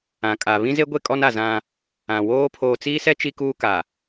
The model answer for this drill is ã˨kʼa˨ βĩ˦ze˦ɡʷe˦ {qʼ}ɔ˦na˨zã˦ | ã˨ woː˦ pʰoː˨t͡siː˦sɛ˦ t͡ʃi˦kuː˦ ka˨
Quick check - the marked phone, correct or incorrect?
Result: incorrect